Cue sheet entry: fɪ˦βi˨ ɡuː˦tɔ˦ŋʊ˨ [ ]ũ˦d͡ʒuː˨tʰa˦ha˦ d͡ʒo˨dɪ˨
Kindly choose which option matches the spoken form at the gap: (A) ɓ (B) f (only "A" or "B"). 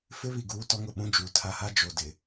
A